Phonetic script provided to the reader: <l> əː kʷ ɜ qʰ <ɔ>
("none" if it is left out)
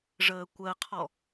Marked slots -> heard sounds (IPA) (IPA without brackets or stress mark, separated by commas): ʐ, ɔ